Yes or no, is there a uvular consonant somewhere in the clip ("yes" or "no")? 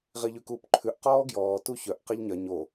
yes